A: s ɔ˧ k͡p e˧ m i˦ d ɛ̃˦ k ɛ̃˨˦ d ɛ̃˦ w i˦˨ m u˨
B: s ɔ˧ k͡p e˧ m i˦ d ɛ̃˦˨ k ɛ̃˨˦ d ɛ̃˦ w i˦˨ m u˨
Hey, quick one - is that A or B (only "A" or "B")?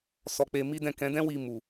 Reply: B